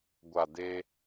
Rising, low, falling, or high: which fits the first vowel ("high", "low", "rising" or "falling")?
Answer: low